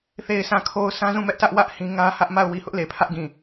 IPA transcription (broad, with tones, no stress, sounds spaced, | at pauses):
θ e˨ ɪ̯ s ã˨ kʰ o˨ ʊ̯ s ã˦ z ũ˦˨ m ɛ˦ ʔ t ä˦ ʔ w ä˦ ʔ h ĩ˦ ŋ ä˦ h ä˦ ʔ m a˦˨ ʊ̯ w i˨ h ʊ˦ ʔ l e˨ pʰ ä˦ ʔ ɡ ĩ˦˨